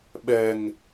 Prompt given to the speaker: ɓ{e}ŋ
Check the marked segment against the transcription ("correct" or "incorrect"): incorrect